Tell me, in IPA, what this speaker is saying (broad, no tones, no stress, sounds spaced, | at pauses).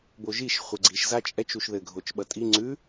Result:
b o ʒ i ʃ χʷ ɘ ɡ͡ǀ i ʃ z a t͡ʃʼ ɛ t͡ʃ u ʃ ð ɘ ɡʱ o t͡ʃ ɓ ʌ tʼ i ŋ͡ǀ ʉ